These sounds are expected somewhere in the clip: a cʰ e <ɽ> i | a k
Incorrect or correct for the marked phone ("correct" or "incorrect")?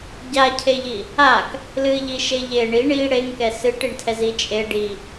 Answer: incorrect